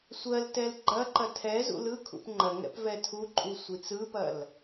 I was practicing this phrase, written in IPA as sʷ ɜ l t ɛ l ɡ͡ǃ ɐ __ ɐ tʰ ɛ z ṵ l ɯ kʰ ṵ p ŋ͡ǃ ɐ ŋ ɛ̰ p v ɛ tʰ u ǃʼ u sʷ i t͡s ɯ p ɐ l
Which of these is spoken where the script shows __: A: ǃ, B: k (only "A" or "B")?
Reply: A